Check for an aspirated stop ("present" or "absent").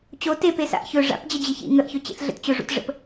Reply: absent